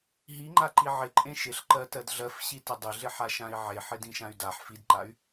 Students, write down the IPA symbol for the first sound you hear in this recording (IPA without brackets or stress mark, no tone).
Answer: ɦ